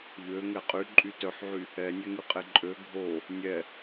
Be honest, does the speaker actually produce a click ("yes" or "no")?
yes